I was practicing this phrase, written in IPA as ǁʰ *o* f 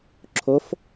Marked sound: correct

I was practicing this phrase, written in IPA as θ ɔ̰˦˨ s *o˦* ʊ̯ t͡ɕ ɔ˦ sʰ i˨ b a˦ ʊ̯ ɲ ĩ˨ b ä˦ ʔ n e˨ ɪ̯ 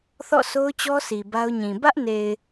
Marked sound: correct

